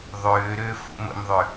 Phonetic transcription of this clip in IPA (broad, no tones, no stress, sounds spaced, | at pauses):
ðˤ ʏː ɾ ʏː f ṵ m ə̰ m ðˤ ʏ